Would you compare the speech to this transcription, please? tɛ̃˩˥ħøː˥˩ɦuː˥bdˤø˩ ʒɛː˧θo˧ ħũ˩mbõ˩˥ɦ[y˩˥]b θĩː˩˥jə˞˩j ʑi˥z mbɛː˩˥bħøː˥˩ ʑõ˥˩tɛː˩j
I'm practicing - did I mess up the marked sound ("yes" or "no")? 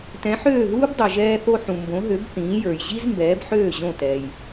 yes